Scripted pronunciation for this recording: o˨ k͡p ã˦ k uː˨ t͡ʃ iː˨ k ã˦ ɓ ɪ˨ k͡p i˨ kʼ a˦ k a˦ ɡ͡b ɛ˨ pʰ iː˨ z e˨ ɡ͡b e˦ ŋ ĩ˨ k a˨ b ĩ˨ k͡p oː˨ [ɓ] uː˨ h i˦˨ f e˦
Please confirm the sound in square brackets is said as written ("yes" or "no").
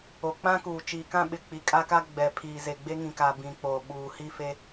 yes